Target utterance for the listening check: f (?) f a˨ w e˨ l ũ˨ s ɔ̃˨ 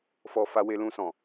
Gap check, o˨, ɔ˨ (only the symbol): ɔ˨